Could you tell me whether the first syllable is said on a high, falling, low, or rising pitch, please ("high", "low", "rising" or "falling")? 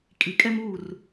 low